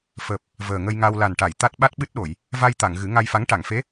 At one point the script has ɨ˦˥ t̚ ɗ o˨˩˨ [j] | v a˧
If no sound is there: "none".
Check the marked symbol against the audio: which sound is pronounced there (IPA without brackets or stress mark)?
j